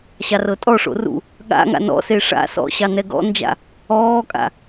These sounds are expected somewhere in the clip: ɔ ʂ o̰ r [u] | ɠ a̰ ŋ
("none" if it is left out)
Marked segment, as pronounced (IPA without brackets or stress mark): ṵ